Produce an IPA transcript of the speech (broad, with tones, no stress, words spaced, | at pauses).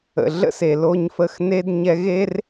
ə̰˨ɮə̰˦se˨ lo˧ɲ fə˧xne˦d ɲɛ˧ɣe˦r